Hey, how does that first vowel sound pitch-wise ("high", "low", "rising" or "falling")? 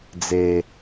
low